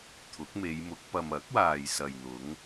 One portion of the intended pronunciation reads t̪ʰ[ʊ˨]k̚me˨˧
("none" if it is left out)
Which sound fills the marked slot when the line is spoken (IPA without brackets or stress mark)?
ʊ˨˥